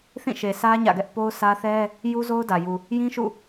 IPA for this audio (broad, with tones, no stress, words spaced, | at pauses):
θĩ˦˨ʃe˨sʰä˦ ɲä̰˦˨ɡɛ˦ʔ po˦ʊ̯sʰä˦ θɛ˦ | ju˦zo˦ʊ̯dä˨ ju˨ | jĩ˦ʃṵ˦˨